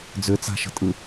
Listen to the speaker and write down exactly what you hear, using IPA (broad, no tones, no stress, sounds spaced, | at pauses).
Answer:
d͡z ʏ t͡s a̤ ʃ ə̤ tʼ ɯ